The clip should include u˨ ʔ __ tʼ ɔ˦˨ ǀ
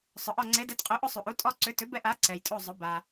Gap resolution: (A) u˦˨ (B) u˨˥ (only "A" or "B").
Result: B